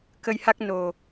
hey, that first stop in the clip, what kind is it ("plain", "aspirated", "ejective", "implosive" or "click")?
plain